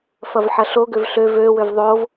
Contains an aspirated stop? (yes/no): no